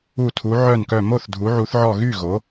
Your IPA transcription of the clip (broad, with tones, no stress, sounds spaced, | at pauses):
u˧˩ tʰ u˩˧ ʕ œ˧˩ n k œ˧˩ m o˥˩ θ dʱ u˩˧ ʕ u˩˧ θ ʕ ɔ˧˩ ɣ y˥˩ ɣ o˩˧